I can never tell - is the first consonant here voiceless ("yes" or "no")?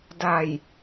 no